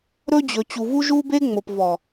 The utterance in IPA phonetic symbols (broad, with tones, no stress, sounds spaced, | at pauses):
ɾ ɵ˦ d͡ʑ ɵ˨ t͡ɕ u˨ v u˦ ʒ u˦ b e˦ ŋ͡m o˨ p v ɔ˨